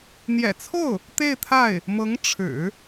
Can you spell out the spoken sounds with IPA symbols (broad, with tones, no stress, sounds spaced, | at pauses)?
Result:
n̪ j ɛ̰˨˩ t͡sʰ o˥˩ ʊ̯ | t̪ e˥˧ ɪ̯ t̪ʰ a˥˩ ɪ̯ | m ɤ˧˥ ŋ ʈ͡ʂʰ ɻ̩˨˩˦